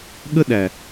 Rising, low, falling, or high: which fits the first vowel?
high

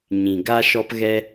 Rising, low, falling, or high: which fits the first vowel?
low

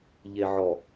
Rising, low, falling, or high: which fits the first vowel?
low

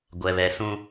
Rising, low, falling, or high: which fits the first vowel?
high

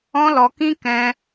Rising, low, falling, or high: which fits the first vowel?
high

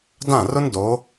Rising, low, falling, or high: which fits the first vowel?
falling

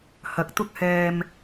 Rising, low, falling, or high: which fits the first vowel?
rising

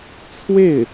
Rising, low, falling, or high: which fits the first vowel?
falling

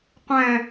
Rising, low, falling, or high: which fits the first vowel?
low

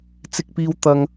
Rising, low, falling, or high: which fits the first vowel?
high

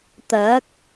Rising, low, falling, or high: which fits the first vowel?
rising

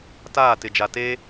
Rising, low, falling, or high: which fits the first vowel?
falling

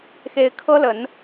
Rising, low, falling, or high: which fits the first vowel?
rising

